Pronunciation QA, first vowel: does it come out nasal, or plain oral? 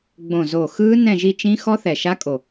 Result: nasal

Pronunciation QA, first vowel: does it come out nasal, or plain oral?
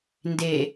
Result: oral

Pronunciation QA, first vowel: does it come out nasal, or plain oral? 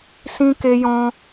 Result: nasal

